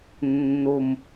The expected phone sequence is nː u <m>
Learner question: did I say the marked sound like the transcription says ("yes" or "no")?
yes